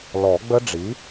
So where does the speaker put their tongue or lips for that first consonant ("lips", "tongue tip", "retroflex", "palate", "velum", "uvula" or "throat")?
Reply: tongue tip